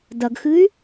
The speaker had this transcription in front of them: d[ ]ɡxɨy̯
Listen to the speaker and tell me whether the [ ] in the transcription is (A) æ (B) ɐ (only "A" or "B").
B